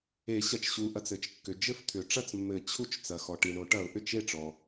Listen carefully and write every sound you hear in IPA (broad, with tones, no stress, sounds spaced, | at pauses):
e˨˩˦ ɕ ɐ˨ t͡ʃ ɕ u˨ ʔ ɐ˨ t͡s ɘ˨ t͡ʃ kː ʏ˨ d͡ʒ ɘ˥˩ f t̪ʰ ʏ˨˩˦ ʈ͡ʂ ɐ˥˩ t͡s mː ɘ˨˩˦ t͡ɕʰ u˥˩ t͡ʃ t͡s ɐ˨ x ɔ˨ ʈ i˨ ɳ o˨˩˦ ʈ ɐ˨˩˦ ʊ̯ ʔ ʏ˥˩ t͡ʃ e˥˩ ʈ͡ʂ ɔ˨